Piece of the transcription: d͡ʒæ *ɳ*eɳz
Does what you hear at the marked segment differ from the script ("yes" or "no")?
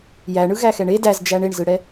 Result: no